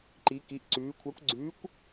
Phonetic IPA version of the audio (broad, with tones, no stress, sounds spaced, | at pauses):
ǃ i˧˥ k i˧˥ ʔ ǀ ʉː˧˥ kʷʰ a˧˥ kʷ ɡ͡ǀ ʉː˧˥ kʷ